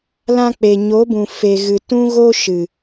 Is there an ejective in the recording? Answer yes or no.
no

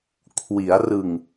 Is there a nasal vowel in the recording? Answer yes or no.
no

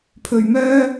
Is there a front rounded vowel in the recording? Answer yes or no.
yes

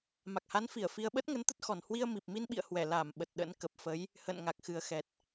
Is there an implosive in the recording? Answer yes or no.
yes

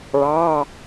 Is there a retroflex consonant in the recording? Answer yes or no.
yes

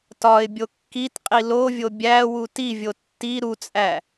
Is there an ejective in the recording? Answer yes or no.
yes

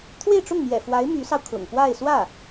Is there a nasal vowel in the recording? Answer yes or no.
no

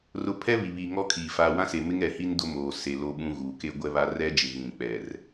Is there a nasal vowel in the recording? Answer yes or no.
yes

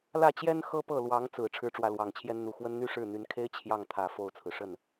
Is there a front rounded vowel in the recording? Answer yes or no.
yes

